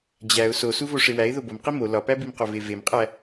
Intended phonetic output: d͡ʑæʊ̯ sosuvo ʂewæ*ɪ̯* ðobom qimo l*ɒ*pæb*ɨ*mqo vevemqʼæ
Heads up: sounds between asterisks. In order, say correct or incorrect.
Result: correct, correct, incorrect: i

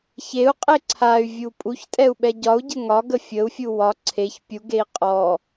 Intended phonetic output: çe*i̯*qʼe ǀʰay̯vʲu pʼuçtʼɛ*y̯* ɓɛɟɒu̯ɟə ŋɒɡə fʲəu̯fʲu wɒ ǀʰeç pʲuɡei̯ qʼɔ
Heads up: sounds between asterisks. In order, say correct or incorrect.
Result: incorrect: u̯, incorrect: u̯

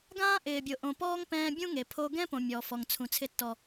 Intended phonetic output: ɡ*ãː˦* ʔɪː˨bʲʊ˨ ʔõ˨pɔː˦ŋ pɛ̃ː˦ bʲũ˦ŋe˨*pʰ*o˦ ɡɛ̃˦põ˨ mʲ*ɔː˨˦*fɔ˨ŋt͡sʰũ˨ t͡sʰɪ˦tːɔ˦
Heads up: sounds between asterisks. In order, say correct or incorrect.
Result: correct, correct, incorrect: ɔː˨

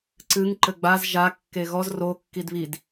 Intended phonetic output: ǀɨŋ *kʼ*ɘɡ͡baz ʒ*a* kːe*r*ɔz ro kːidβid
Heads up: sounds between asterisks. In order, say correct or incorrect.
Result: incorrect: ǃ, correct, incorrect: ɣ

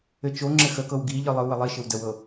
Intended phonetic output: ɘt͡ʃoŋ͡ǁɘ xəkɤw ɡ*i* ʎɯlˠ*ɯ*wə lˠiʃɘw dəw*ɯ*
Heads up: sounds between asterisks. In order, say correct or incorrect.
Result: correct, correct, incorrect: ɤ

